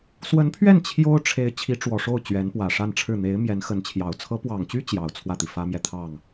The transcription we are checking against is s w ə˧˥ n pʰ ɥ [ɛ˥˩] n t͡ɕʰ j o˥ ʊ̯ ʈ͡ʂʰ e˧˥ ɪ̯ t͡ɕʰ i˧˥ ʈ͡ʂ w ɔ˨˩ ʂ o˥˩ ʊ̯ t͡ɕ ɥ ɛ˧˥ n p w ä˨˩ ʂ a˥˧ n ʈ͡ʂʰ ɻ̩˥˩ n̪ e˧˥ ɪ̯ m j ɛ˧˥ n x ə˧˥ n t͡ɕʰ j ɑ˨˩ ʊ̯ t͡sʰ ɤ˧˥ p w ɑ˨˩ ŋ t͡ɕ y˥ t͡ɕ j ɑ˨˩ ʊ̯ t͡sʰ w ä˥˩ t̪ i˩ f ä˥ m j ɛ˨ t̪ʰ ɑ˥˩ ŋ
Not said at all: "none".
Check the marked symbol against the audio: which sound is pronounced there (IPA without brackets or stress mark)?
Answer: ɛ˥˩